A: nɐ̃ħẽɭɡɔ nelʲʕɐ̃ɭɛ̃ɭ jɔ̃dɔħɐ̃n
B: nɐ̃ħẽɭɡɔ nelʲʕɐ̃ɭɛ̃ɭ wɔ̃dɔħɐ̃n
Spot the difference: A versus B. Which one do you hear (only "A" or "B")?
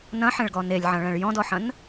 A